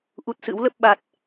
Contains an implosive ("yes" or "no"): yes